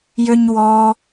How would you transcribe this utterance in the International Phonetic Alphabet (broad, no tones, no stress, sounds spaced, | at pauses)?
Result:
j ø ɲ w ɔ